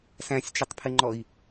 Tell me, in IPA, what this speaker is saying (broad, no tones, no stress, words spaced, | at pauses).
sæ̃sʲt͡ʃɪtˤpʰɪŋ͡ǃɔi̯